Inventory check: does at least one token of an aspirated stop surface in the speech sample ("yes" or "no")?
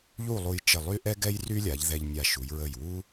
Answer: no